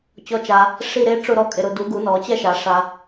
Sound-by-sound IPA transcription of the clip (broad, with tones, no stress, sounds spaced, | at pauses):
t͡ɕ ɔ˨˦ t͡ʃ a˨ | ʂ i˥˧ ɾ e˦˥ ʈ͡ʂ ʊ˥˧ ɾ ɔ˥˩ kʼ ɪ˨ ɾ ʊ˨ d u˨˩˦ ɡ u˨˩˦ n ɔ˨˩˦ t͡ɕ ɛ˥˧ ʃ a˨˩˦ ʂ a˨